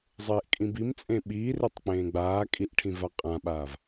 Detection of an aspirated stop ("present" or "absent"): present